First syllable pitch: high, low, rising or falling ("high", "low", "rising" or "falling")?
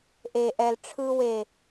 high